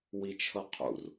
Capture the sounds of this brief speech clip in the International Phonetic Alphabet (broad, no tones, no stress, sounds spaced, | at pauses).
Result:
w i t͡ʃʰ ɤ qʰ ṵ r